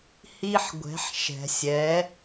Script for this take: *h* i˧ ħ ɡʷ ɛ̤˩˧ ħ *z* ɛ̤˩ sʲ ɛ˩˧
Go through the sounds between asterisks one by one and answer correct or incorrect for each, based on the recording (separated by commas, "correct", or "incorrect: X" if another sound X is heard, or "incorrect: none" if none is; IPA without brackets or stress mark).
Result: correct, incorrect: ʃ